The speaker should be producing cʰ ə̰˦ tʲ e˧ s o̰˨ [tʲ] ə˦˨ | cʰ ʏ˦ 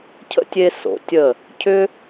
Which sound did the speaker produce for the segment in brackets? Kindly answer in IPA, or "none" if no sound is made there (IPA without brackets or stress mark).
tʲ